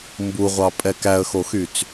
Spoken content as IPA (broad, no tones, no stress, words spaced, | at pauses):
mbuʁʷɑ pʼɛkæə̯xoxyt͡s